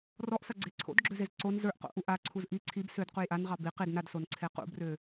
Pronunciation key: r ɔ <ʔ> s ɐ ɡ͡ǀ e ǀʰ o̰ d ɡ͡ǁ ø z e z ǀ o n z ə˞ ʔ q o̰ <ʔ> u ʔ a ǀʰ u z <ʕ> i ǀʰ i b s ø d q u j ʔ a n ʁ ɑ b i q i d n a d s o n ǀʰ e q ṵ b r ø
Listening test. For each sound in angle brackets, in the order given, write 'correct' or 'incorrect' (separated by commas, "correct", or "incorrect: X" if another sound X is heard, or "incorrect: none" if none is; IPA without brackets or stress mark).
correct, correct, incorrect: ʔ